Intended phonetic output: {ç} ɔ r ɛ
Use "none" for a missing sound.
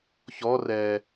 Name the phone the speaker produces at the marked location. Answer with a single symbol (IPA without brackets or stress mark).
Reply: ç